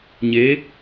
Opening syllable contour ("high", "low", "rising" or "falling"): rising